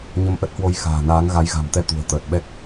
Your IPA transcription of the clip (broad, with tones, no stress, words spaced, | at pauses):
ɲə˧mʔə˦˥t̚hwo˧j xa̤ː˨˩ naː˨˦ŋ ɣa˨˦jɣa̤˨˩mt̪ɛ˧ t̪ṳ˨˩ə̯ t̪əː˨˩t̚ɓɛ˦˥k̚